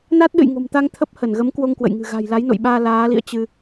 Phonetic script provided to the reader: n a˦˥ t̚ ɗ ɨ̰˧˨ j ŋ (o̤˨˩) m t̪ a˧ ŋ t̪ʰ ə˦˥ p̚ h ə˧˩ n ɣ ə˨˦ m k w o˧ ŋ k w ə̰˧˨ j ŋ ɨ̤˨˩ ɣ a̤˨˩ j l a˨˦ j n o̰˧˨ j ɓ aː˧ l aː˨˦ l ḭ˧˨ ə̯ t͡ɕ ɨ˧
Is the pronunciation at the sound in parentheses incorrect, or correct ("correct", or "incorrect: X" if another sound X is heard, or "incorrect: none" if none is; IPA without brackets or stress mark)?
correct